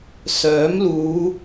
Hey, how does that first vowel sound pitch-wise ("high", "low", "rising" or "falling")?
rising